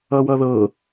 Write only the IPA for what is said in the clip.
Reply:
ʌwʌðɤ

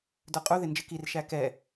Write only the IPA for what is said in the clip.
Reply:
də˞qʼu ðɪnd͡ʒɪkir ʃækɛ

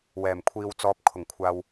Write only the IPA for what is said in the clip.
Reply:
wɛː˨˩mkʷʰiː˨wt͡sɔː˨p̚ kʰʊ˨˩ŋkʷʰaː˨w

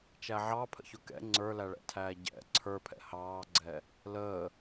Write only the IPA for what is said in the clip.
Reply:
t͡ʃæʕɑpʰə̰çʊ kɛ̰ ŋ͡ǀə˞læɭɛ̰tʰæː ɟɛ̰ ǀʰə˞pʰɛ̰ hɑːɡ͡ǀɛ | ləː

